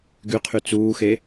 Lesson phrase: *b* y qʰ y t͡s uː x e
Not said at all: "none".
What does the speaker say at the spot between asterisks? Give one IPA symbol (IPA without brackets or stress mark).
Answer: ɡ